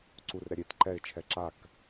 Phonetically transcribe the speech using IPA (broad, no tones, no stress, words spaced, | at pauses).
ǀurɾɛ ɾʲet ǃɛɪ̯t͡ʃʰɛ ǁak